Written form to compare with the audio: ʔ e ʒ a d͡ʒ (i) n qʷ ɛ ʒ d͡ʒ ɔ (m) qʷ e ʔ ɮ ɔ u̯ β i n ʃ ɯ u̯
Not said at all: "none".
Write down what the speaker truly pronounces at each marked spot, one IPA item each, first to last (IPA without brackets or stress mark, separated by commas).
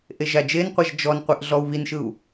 e, n